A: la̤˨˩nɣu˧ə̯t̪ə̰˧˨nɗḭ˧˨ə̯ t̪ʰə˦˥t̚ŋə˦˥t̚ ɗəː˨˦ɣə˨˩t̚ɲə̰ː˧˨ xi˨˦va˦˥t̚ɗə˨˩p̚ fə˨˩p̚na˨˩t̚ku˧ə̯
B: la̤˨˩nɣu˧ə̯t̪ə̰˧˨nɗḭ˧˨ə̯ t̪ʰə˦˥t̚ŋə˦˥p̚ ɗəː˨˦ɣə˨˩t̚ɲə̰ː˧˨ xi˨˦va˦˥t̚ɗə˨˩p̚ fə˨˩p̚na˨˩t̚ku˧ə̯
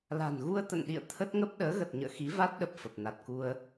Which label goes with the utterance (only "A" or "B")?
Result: B